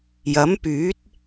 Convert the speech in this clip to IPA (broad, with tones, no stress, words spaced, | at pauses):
jɐ˨˥mpyː˨˥t̚